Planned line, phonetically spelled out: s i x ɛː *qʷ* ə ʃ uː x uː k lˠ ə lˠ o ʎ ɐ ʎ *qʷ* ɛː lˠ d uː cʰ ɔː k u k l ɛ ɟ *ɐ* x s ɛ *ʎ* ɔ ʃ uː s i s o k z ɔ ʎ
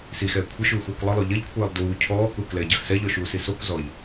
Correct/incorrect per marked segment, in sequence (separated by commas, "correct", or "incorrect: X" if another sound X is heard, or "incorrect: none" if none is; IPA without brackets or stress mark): incorrect: kʷʰ, incorrect: kʷʰ, correct, correct